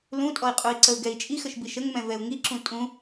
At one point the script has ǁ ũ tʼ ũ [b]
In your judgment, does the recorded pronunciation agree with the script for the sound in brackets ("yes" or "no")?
no